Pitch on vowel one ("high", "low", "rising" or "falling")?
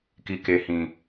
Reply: low